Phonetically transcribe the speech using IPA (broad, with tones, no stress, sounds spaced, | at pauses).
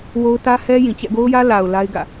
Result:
w o˦ ʊ̯ t ä˦ h ɛ˦ j ĩ˨ t͡ɕ ɛ̰˦˨ ɡ o˦ ʊ̯ j ä˦ l a˨ ʊ̯ l a˦ ɪ̯ ɡ ä̰˦˨